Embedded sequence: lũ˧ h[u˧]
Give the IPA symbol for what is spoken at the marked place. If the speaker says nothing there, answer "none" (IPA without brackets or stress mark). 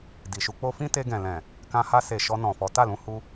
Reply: u˧